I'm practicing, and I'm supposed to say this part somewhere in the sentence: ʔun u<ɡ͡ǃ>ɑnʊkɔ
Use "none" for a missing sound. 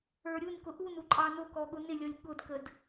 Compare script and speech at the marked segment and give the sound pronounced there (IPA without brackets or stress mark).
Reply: ǃʼ